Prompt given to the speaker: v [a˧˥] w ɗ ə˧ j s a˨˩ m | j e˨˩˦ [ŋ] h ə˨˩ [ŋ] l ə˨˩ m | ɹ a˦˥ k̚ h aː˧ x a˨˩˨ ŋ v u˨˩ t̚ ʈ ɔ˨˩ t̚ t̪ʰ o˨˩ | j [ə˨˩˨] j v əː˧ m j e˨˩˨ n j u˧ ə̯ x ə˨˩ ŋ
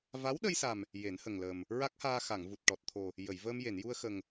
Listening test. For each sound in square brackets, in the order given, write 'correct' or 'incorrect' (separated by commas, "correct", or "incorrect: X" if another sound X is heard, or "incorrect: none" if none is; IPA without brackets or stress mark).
correct, incorrect: n, correct, correct